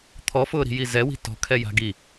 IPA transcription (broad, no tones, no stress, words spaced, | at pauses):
t̪ʰɔfʊːɾi̤ji zɛwi̤ tɔ̤kʰɛja̤ ɡi